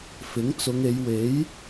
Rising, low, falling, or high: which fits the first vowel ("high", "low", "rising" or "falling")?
rising